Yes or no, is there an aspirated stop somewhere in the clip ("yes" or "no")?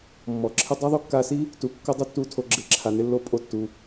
yes